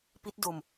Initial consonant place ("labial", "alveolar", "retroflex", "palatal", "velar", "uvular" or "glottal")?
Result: labial